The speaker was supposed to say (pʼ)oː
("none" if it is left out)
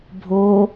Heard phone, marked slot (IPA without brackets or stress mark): bʱ